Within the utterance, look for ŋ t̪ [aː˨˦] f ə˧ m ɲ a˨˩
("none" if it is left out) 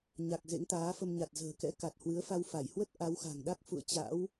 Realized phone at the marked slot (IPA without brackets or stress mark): aː˨˦